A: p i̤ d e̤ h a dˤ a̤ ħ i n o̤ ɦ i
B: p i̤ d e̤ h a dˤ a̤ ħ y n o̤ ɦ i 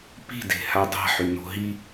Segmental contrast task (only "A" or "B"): B